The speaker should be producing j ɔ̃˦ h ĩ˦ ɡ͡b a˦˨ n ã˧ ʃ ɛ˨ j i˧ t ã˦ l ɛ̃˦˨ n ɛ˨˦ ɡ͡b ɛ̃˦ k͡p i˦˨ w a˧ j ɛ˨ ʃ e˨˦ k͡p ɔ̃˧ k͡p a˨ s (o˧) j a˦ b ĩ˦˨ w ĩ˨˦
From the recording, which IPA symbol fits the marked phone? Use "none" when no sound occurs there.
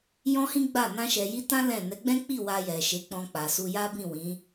u˧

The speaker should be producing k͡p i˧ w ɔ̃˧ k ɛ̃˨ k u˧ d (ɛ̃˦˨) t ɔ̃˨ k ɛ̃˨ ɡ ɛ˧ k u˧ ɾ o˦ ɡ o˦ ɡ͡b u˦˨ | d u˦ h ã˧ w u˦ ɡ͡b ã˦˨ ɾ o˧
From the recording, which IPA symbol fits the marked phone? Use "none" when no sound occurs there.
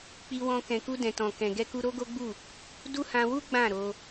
ɛ̃˨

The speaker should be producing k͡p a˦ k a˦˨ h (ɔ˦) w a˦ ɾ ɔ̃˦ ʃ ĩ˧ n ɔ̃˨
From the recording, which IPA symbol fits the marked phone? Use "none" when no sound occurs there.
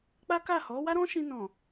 ɔ˨˦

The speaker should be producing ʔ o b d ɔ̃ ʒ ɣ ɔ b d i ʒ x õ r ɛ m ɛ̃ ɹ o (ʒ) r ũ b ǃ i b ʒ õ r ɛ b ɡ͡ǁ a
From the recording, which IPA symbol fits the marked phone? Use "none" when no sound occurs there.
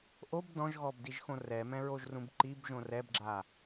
ʒ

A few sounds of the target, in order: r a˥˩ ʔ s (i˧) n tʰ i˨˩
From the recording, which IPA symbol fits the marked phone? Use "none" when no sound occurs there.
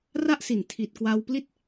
i˨˩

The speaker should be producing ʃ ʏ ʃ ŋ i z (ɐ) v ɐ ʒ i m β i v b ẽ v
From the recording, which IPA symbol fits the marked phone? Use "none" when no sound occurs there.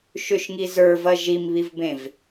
ə˞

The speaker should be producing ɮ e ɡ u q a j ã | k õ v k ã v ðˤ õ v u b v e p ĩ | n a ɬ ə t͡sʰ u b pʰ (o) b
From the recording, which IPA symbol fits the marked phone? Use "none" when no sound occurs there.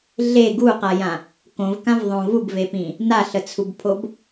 o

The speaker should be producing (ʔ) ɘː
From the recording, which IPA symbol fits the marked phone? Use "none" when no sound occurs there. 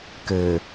k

